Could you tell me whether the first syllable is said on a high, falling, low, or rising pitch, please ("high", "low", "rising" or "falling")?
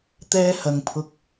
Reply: high